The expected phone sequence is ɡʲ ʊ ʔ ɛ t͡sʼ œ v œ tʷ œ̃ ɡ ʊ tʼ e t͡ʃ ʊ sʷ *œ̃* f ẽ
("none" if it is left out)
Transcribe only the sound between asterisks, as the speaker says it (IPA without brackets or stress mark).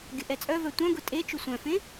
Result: œ̃